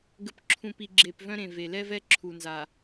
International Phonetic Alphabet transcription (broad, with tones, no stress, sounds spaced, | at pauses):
ɡ ə˨ p ǁʰ ũ˨ p i˨ ɡ͡ǁ e˨ p v œ̃˦ ɾ ẽ˨ v e˨ l ɛ˦ v ɛ˦ ǁʰ u˨ n z a˨